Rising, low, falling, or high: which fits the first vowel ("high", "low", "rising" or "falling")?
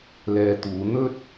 low